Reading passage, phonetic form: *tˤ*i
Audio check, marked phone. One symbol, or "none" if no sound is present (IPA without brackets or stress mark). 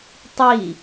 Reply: tˤ